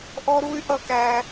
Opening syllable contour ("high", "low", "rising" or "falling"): high